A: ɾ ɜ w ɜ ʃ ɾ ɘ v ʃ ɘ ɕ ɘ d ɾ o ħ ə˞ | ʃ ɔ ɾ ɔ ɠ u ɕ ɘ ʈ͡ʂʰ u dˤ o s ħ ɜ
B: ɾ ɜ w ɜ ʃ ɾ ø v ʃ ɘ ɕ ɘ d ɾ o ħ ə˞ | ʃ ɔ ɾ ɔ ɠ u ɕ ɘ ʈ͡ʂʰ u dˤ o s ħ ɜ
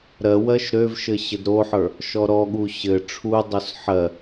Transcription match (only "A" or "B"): B